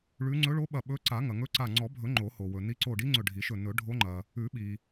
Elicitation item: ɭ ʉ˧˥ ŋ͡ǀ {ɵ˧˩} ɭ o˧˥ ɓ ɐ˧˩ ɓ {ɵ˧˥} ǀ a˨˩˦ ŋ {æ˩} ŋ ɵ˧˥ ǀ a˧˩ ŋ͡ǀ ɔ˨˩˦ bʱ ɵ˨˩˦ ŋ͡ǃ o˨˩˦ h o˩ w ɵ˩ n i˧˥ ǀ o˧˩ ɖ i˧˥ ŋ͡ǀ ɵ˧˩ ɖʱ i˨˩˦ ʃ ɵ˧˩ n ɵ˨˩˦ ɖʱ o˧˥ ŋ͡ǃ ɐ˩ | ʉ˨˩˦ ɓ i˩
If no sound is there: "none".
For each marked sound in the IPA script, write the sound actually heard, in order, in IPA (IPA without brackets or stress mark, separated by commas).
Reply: ɵ˧˥, ɵ˧˥, ɐ˩